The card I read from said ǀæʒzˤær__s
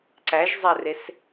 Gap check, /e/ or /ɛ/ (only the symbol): e